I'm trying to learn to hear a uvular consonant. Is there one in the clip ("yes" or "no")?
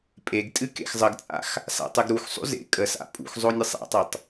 no